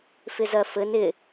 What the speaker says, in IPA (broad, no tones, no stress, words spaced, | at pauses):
fɪzɜfɘn ɪ